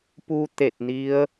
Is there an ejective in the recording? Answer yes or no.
no